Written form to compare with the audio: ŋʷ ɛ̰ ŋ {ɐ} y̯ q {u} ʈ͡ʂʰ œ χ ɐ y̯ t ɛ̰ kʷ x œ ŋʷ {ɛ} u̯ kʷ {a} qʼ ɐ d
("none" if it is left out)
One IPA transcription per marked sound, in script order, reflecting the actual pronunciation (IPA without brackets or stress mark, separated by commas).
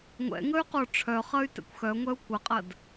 ə, o, ɛ, ɐ